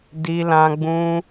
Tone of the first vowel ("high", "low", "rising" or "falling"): high